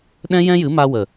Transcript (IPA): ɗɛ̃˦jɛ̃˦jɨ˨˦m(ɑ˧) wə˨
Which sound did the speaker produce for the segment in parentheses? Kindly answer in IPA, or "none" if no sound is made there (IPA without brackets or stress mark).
a˧